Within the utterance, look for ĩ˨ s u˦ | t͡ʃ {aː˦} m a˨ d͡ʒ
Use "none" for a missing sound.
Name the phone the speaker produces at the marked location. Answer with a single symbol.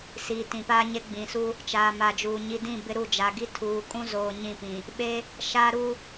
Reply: aː˨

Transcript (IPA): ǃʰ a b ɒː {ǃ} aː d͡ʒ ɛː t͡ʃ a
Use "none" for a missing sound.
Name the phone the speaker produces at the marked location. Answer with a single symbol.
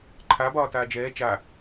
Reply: t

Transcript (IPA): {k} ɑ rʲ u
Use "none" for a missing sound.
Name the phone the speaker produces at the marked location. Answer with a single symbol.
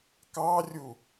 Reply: k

